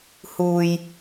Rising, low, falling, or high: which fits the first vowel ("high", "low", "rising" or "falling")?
low